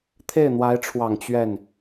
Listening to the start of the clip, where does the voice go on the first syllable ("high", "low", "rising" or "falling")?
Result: falling